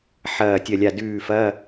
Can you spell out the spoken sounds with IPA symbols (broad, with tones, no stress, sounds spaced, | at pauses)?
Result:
ħ ɐː˦˨ tʲ ɐ˦˨ lʲ a˦˨ d ʉː˦˨ f ɐ˧˥˧